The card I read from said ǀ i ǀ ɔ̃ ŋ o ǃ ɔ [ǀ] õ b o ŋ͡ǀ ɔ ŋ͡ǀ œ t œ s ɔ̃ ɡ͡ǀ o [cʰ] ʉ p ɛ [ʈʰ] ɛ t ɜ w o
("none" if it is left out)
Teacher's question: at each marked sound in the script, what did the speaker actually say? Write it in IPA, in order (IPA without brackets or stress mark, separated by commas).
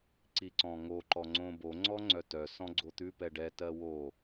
ŋ͡ǀ, t̪, ɖ